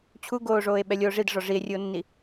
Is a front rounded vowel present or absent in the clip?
absent